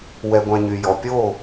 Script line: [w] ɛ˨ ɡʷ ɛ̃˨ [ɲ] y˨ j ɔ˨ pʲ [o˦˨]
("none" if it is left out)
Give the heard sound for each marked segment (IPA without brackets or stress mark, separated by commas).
w, ɲ, o˦˨